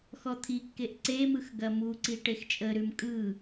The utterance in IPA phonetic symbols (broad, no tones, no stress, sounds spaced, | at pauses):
x ɔ t̪ʰ i kː e ʔ ǀ e m ɯ x ɡ ɐ m u ǀ i ʈ e x t͡ʃʼ ə ɾ ʉ m kʼ ɯ